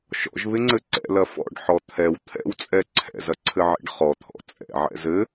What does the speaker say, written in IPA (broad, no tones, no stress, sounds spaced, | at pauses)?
ʃ ɔ̰ ʒ β ɪ ŋ͡ǀ ɘ ǀ ɛ̰ l ɐ f ɔ̰ ɖ ħ ɔ t̪ʰ ɛ w t̪ʰ ɛ̰ w t͡sʼ ɛ ǀʰ ɛ̰ z ɐ ǀʰ ɘ ʕ ḛ ɖ χ ɔ t̪ʰ ɔ̰ t͡sʼ ɛ̰ ʕ ɛ̰ z ɘ